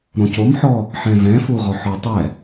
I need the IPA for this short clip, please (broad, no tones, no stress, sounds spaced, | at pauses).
ɾ õ c o m ħ ɔ | ħ ɛ̃ v ɛ̃ f u ʁ ɔ ħ ɔ tˤ ɛ